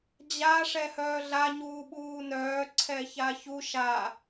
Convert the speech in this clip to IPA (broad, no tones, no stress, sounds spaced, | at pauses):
d͡ʑ a ʂ ɛ h œː ɮ a ɲ uː ɓ uː n œː ǀʰ ɛ ç a ç u ʃ a